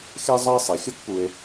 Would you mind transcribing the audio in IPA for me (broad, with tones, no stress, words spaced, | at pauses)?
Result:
xe˥ zˤʌ˥e̯ sˤi˩xʲo˥kpu˨e̯